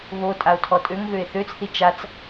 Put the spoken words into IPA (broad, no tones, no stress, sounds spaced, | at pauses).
β o tʼ a o̯ tʰ ɔ tʼ ø ŋ ɣ ø e̯ θ ø t͡s θ i t͡ʃ a t͡s